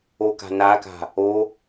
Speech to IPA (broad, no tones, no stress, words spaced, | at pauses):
oka̤ naka̤ | o